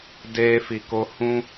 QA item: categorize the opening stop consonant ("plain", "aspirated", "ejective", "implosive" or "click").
plain